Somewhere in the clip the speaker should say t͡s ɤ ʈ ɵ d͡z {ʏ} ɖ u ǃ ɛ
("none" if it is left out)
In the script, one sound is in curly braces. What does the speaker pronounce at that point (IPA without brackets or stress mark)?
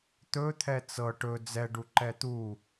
ɛ